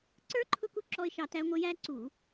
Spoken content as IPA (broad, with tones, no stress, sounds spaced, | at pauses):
ǀ ə˞˦˥ ǃʰ ʊ˦˨ k u˦˨ ǁ ɔ˦˥ ɪ̯ ʃ ɑ˦˨ t æ˦˥ ŋʷ ə˦˥ j æ˦˥ ǀ u˧˩˧